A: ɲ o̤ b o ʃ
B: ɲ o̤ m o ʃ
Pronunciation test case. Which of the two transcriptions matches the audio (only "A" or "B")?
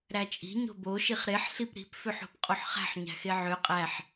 A